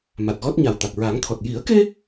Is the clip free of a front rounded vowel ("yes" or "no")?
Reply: yes